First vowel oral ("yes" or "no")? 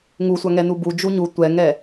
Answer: yes